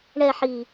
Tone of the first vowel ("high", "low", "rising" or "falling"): falling